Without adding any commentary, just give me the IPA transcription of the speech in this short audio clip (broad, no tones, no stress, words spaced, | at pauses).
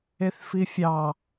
eθfifʲɑ